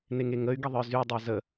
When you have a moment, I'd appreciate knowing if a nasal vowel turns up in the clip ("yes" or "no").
no